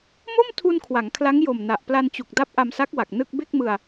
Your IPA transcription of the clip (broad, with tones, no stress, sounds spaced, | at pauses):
m o˥˩ m tʰ u˧ n kʰ w a˩˦ ŋ kʰ l a˦˥ ŋ j o˨˩ m n a˨˩ ʔ p l a˧ n t͡ɕ u˨˩ k̚ d a˦˥ p̚ ʔ a˧ m s a˦˥ k̚ w a˨˩ k̚ n ɯ˥˩ k̚ b e˥˩ k̚ m ɯ˧ a̯